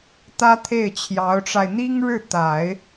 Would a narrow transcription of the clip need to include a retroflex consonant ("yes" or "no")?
yes